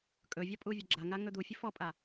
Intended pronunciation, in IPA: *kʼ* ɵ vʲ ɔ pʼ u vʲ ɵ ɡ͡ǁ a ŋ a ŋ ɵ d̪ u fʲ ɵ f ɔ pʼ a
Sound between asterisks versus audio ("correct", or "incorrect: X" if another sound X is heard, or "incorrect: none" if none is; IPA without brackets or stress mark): correct